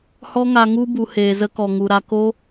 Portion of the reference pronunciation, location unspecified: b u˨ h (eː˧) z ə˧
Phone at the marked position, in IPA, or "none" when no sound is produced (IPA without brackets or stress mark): eː˨